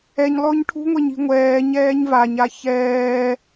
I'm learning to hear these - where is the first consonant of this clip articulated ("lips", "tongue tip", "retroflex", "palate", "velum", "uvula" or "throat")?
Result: palate